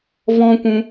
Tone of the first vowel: high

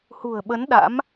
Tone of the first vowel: low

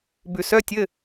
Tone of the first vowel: low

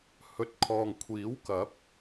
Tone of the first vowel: low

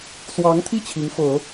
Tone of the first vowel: rising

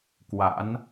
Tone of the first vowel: rising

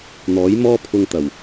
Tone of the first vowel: rising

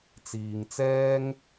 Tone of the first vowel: low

